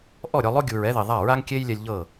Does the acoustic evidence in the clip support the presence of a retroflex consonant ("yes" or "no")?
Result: no